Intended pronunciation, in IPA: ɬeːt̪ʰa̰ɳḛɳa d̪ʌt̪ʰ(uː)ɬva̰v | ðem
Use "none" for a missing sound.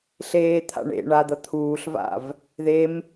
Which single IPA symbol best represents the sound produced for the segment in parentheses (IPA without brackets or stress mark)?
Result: uː